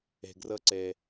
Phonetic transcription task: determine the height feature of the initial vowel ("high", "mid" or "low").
mid